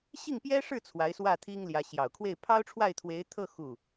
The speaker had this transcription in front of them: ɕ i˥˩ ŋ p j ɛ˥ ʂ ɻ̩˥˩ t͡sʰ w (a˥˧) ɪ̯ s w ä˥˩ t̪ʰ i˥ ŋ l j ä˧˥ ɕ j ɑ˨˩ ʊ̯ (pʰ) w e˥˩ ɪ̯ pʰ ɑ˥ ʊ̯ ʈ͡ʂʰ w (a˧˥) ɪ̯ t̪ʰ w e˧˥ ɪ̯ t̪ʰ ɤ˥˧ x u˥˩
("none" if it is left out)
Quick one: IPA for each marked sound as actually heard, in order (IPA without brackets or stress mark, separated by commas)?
a˧˥, kʰ, a˥˩